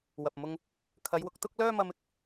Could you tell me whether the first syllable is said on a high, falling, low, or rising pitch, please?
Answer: low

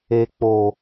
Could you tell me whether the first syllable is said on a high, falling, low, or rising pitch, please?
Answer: low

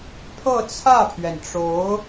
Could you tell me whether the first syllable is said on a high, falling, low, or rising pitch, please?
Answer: falling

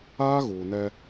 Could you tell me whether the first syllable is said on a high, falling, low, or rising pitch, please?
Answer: high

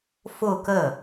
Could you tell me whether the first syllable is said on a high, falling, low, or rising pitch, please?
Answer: falling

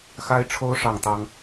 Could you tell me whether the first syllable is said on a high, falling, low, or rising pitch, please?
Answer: high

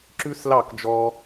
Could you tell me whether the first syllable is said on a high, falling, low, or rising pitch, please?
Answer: high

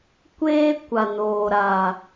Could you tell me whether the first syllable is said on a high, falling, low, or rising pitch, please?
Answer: high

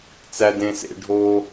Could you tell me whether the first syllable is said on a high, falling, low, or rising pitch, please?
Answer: high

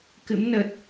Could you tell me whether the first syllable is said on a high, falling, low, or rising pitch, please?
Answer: rising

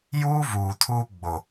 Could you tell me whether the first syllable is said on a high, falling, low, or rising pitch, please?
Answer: high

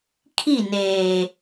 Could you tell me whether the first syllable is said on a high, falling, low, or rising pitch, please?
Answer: falling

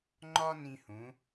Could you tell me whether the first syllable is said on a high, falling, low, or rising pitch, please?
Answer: high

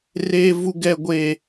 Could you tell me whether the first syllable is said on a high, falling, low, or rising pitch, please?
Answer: high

